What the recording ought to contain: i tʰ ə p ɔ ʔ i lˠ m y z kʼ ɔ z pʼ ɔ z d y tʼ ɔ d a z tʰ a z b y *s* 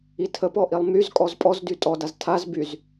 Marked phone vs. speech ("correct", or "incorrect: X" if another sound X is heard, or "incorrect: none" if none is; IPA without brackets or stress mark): incorrect: z